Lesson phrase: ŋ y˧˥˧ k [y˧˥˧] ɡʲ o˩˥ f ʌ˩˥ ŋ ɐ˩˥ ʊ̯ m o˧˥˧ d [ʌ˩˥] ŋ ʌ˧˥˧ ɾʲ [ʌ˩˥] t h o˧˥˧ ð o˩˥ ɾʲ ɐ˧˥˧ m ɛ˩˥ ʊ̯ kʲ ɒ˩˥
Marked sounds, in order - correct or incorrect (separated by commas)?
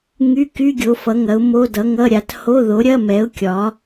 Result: correct, correct, incorrect